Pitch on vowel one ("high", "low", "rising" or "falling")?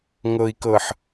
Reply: low